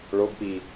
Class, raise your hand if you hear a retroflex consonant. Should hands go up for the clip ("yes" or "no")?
yes